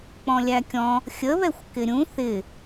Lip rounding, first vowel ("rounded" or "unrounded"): rounded